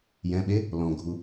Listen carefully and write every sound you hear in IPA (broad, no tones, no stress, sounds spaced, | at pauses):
j ɛ̃ ɓ e | l ɔ̃ ɡʱ u